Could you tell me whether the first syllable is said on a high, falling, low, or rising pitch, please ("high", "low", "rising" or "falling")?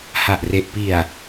low